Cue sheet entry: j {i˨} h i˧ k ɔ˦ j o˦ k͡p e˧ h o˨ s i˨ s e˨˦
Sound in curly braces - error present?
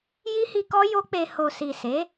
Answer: yes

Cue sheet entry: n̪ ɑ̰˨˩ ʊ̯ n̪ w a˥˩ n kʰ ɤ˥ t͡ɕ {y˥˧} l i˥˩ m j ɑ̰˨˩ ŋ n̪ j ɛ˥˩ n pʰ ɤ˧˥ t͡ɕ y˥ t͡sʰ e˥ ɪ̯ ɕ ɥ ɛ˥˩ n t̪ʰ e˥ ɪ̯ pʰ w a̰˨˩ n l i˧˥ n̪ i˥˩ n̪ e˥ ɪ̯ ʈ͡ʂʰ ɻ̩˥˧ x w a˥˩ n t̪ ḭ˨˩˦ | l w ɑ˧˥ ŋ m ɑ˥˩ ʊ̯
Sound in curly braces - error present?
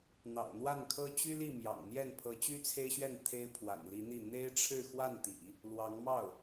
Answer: yes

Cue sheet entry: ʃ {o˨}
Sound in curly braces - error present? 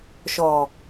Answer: yes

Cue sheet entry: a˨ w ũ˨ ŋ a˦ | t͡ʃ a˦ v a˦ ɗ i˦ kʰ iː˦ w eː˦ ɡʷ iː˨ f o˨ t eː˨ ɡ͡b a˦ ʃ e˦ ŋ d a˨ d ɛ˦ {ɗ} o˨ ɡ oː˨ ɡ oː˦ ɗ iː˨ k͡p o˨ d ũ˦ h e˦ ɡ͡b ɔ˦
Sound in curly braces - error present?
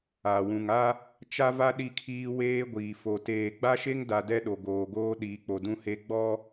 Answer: no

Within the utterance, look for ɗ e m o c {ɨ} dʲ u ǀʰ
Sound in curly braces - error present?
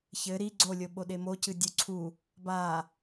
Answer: no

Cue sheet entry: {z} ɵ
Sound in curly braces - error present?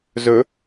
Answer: no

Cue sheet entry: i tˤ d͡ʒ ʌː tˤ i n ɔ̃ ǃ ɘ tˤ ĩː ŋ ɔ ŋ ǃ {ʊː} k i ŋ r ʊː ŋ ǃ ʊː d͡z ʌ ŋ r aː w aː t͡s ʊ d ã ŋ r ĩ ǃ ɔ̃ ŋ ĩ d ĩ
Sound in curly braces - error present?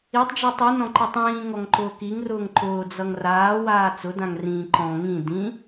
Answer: no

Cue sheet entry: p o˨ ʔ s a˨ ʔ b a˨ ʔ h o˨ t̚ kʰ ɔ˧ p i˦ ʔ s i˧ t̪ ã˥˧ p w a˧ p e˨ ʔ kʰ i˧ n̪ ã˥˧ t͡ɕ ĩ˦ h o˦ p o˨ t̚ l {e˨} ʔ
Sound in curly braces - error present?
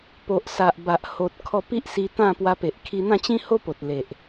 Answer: no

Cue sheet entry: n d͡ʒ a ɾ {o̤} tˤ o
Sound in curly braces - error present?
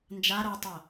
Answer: yes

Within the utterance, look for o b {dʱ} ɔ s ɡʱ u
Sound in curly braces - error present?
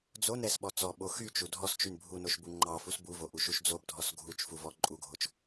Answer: no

